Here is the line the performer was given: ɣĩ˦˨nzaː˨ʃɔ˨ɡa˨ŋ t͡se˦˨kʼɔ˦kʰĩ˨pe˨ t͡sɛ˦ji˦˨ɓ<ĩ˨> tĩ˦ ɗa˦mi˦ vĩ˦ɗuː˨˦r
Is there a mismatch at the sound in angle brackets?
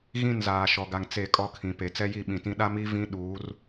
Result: no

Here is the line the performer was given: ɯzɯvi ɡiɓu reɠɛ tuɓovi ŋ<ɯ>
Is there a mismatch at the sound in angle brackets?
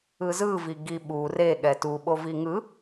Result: no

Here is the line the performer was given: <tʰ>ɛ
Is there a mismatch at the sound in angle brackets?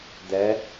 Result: yes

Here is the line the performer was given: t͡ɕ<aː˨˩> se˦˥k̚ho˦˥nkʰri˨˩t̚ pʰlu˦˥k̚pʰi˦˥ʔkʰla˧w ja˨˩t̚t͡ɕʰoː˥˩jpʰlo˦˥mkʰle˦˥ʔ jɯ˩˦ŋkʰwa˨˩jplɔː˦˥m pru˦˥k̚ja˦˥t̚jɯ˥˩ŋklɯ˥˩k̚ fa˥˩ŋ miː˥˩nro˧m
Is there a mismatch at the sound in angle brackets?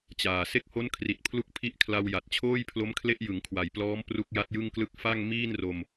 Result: no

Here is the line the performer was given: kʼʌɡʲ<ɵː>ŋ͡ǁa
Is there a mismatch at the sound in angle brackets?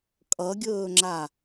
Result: no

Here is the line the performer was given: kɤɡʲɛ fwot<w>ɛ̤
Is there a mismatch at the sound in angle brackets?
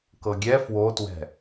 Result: no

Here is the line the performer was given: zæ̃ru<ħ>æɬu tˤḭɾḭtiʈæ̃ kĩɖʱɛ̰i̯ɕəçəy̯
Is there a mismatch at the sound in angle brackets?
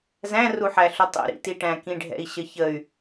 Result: no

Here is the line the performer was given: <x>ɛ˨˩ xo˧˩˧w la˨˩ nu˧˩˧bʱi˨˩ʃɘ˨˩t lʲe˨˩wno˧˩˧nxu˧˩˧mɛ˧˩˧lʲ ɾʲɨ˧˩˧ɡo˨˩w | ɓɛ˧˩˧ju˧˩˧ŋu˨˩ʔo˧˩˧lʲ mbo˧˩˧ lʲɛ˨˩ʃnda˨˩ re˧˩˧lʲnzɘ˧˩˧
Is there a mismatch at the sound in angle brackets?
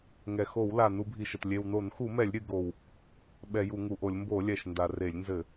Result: yes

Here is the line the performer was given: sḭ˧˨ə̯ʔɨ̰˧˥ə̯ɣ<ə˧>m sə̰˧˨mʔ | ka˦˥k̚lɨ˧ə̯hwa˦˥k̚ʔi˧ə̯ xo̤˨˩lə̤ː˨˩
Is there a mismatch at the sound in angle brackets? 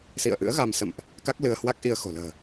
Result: yes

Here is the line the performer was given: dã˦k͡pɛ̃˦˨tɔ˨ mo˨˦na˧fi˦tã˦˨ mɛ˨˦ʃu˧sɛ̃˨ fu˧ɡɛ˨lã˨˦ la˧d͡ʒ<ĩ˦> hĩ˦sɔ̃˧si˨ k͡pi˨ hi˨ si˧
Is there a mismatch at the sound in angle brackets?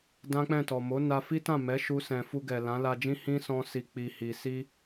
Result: no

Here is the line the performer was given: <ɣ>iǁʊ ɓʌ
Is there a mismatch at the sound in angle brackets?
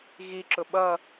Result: no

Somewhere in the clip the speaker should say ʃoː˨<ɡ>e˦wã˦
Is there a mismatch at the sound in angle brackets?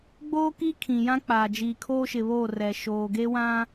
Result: no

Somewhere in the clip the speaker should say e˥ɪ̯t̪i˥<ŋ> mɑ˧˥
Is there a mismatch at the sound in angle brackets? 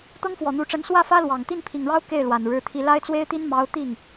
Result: yes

